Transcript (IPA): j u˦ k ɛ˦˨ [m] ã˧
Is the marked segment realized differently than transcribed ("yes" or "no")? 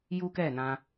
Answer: yes